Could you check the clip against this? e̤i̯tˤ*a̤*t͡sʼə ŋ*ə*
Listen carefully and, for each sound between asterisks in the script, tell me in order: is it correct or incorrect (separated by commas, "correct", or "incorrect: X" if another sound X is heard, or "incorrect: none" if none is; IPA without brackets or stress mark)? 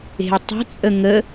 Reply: incorrect: ə̤, correct